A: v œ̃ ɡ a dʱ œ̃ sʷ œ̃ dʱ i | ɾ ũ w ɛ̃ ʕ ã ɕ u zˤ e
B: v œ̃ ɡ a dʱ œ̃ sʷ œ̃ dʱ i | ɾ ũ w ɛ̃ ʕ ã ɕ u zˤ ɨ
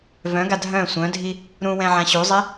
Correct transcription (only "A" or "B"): A